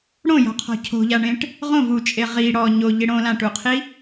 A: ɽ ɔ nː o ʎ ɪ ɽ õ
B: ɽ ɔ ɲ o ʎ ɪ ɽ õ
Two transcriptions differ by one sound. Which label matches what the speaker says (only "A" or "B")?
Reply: B